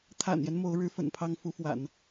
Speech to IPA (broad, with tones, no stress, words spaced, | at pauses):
t̪ʰa̰˨˩njɛ˦n mo˧˥ʊ̯ ɻɻ̩˧˥fə̰˨˩n pʰɑ˥ŋ fu˧˥fwa̰˨˩˦n